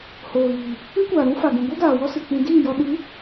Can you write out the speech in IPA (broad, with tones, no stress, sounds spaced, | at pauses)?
h oː˨ ɣ iː˨ | ɨ˦ kʷ aː˨ ɾ ũ˦ f a˨ ɡ ũ˨ ɡʷ ɛ˦ ɡ aː˨ w ɔ˦ s ɨ˨ k͡p ĩ˧ d iː˦˨ j ɔ˧ ɗ ɨ˨˦